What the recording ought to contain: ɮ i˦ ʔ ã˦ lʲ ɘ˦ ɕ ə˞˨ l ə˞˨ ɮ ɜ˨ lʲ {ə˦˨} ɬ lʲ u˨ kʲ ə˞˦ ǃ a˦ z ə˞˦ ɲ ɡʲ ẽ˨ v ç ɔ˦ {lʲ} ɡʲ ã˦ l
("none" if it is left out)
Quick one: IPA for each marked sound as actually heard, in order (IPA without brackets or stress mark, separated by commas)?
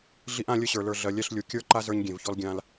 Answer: ɛ˦˨, l